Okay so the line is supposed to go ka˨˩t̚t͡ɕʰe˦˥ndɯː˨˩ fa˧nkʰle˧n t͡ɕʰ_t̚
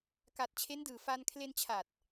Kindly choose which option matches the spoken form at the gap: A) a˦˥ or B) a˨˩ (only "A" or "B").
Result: B